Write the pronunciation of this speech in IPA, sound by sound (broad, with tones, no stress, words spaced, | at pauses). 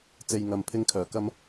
t͡se˨jŋɐ˨m pʰɪ˥ŋkʰœː˨˩ kɐ˥m